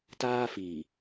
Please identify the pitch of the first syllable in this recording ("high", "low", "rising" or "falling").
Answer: high